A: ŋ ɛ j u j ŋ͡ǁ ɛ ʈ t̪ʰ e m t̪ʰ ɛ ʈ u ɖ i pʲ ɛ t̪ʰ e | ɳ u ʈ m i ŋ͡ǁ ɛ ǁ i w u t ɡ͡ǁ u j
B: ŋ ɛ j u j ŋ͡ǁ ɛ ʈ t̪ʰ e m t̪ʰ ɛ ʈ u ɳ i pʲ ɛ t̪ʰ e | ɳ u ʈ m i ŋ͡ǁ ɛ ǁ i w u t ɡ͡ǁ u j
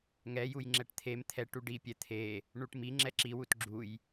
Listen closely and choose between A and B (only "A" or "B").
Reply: A